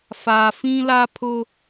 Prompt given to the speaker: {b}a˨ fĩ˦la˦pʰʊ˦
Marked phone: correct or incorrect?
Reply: incorrect